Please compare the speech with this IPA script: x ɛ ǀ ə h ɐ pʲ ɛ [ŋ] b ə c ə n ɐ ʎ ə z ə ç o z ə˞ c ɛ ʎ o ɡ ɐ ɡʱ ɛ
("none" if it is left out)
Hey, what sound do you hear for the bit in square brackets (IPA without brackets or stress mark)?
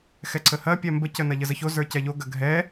m